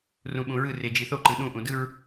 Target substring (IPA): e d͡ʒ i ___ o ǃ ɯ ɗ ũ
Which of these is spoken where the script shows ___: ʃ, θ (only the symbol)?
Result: θ